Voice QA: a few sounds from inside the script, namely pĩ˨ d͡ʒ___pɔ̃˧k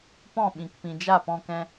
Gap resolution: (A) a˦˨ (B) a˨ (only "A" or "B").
A